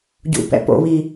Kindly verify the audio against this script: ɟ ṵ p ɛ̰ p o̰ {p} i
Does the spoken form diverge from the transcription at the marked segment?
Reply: yes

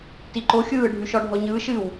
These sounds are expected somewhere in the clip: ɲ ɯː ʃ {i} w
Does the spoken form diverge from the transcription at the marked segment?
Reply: yes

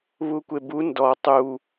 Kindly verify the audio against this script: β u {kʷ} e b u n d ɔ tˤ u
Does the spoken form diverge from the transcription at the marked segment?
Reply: no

